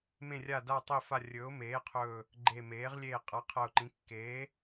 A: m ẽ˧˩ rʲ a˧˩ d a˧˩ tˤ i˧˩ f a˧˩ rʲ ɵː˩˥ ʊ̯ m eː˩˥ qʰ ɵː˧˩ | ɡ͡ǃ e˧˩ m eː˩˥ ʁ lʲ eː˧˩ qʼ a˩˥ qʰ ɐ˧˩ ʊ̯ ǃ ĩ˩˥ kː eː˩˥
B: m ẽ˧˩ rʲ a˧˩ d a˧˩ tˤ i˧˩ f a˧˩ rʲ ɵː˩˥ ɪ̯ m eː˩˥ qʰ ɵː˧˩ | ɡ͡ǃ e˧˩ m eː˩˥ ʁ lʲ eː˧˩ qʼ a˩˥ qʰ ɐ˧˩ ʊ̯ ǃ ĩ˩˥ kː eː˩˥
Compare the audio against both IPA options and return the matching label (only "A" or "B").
A